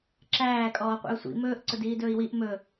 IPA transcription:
ǁæː kʼɔːqʷḭu̯sʷḭ mɵːʔ ǀʊdiːdɵːi̯wiʔ mɵ

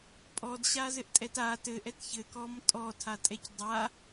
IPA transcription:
pʼɔdɕazɘʔtʼɛt a tɘʔɛt çɘkɔm tʼɔtʰatʼɛc dˤa

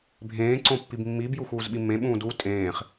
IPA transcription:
bʱẽːǀõ pːibmːibju xuːzɓimːẽɓũː du tʼẽːχ

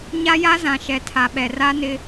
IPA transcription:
ɲa˦ja˦zã˨ʃɛ˨ tʰa˨ɓɛ˨ra˦ nɪ˦

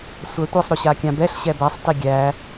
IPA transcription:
sʷætʷesˤ ɾoɕakʲãbɛɬ ɕɛbæsˤ teɡʲæ

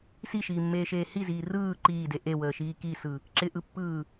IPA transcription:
siʃiːmːeːʃeː hiziː rɯː ǃiːde ʔewəːʃiː kisɯ | ǁɪʔɯpːɯː

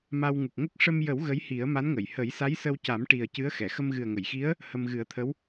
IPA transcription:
ma˧w ŋu˨˩k̚ŋə˦˥k̚ ʂə˧mjə˨˩˦w ɣə˧˥jhi˨˩˦ə̯ma˧˥nŋə˨˩˨j hə˨˩˦jsa˧˥jsə˧wca˨˩˦m ʈi˨˩ə̯ cɨ˧˥ə̯xɛ˨˩˨ xə˧mɣɨ˨˩ə̯ŋə˨˩˨jxi˧˥ə̯ | hə˧mɣɨ˨˩˦ə̯t̪ʰə˧˥w

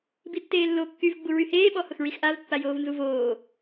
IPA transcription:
bitːeːlːo kːyv ɡ͡buɹyheː ɓɔhʊxɹixʔav pːajoːvnzuvoː

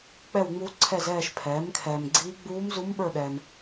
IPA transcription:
k͡pɛ˦˨wŋ͡mu˧˥ǀʰɛ˦˨zɛː˦˨ʃ pʰɛː˩˥mkʰɛː˨mɡ͡ǀiː˧˥ ɡ͡buː˧˥mzu˧˥mɓə˞˦˨ɗɛ˨m

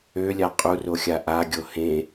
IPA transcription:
ølʲa qʼuroxʲa ʔaɡʲo hẽ

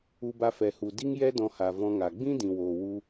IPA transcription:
u˧ba˧fɛ˨hu˨ di˦ŋjɛ˦dɔ̃˧ha˨ vɔ̃˧ŋa˨ ɡ͡bĩ˦dĩ˨woː˨ wu˧

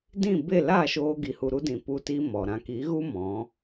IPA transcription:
dĩ˦˨be˦˨ laː˦˨ʃoː˧ɡi˨hu˨ ɾu˧dĩ˨ pu˧ti˧ mɔ˨ ɾã˨ki˨˦ɣu˦ mɔ̃˨˦

